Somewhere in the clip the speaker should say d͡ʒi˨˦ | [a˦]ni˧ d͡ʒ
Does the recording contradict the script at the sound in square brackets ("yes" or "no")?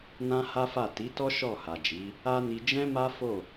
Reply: no